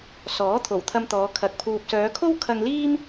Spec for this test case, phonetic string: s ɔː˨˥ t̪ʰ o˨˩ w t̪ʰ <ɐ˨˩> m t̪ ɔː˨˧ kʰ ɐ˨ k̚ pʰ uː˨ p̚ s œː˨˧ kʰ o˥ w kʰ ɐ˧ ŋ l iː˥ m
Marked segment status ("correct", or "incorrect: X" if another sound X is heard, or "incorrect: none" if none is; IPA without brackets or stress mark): incorrect: ɐ˧